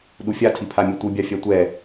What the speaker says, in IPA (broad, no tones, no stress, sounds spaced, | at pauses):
ɗ u fʲ a tʰ i pʰ a mʲ e tʷ ɯ bʲ a fʲ a tʷ ɛ